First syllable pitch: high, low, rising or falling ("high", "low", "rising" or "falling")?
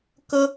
high